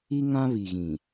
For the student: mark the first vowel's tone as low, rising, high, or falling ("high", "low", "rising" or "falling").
high